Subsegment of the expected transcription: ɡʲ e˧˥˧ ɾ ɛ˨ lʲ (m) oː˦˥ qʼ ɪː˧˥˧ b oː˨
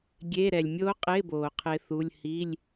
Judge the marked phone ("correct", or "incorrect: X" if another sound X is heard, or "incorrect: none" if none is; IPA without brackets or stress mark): incorrect: mʲ